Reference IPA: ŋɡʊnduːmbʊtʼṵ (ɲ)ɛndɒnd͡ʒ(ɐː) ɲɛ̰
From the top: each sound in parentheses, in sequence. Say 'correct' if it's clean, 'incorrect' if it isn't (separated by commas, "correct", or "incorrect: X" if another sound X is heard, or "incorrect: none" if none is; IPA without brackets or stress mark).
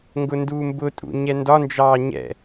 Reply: correct, incorrect: ɑː